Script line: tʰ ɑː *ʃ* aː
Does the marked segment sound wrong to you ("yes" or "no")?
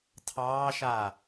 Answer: no